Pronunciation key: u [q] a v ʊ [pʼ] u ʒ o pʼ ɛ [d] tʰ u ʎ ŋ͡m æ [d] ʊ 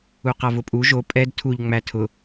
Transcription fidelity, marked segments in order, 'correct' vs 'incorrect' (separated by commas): correct, correct, correct, incorrect